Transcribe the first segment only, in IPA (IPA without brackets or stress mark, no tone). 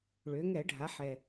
ɭ